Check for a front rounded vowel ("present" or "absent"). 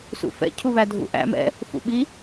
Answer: absent